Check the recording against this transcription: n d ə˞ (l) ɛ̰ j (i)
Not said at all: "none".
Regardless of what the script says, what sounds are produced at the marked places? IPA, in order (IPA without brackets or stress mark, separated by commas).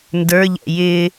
ʎ, ɪ